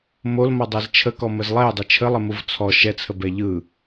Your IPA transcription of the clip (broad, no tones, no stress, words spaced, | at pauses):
molmɔdˤɛz t͡ʃʰəkɔməz lˠɛjdˤɯ t͡ʃʰəlˠəmuv t͡sʰɔ ʃɛt͡sʰəbɛ ʎɯ